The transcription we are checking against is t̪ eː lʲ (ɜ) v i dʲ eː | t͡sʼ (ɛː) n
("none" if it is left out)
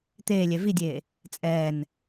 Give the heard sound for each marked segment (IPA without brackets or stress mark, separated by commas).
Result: ɛ, ɛː